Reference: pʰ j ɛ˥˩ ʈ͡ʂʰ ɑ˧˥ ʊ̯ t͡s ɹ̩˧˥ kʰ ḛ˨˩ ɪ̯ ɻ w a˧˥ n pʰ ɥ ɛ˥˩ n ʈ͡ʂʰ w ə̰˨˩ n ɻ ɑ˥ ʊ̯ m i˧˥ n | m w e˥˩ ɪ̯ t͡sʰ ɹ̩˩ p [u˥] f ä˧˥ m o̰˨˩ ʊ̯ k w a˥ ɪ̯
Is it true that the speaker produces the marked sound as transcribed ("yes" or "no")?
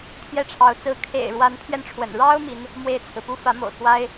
yes